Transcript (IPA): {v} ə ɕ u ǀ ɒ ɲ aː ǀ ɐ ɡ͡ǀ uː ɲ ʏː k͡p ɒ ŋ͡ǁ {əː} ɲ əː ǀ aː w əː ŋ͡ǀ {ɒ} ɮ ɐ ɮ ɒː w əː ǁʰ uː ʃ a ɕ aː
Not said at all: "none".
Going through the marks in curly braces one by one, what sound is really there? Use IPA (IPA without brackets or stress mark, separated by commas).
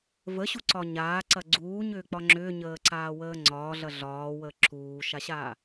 v, ʏː, ɒː